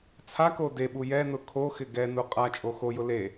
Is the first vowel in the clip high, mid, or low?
low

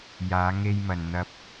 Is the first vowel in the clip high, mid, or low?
low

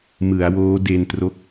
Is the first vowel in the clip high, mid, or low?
high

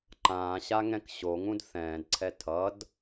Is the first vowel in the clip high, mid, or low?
low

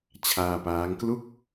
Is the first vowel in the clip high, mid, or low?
low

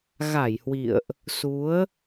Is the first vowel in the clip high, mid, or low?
low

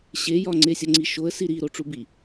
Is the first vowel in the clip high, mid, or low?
mid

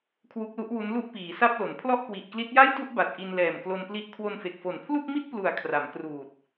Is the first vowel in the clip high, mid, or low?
high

